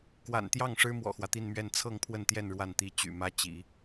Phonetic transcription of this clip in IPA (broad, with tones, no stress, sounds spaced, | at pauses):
k w a̰˨˩ n t̪ j ɑ˥˩ ŋ ʂ ɻ̩˥ m w ɔ̰˨˩ x w ä˦ t̪ i˥˧ n m ɥ ɛ˥˧ n t͡sʰ ɤ˥˧ ŋ pʰ w ə˥˧ n t̪ j ɛ˥˧ n ɻ w a˥˩ n t̪ i˥ t͡ɕ y̰˨˩ m ä˥ t͡ɕ ḭ˨˩˦